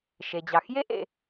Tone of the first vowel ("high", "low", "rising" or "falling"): low